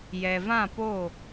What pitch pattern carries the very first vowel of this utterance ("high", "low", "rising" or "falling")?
low